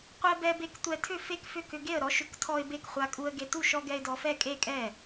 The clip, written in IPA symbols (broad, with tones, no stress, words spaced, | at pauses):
qʷɛ˧bɛ˧be˧k tʷɛ˧tʰʏ˥˩ fe˥˩kfʏ˥˩ kʏ˧ɡe˥˩ə̯ɾɔ˧ʃʏ˧k tʰɔ˧ɪ̯ be˥˩k χʷa˧kʼu˧ə̯ɡe˧tu˥˩ʃ ɔ˧ɡɛ˧ɪ̯ dɔ˧fɛ˥˩kʼe˥˩kʼɛ˥˩